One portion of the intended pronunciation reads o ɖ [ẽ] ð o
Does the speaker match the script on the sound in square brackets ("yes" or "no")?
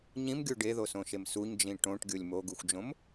no